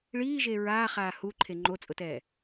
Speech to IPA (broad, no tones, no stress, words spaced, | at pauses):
ɭiːʒe ɹaːχaː huǃʰe ŋ͡ǃot͡sʼʊtɛː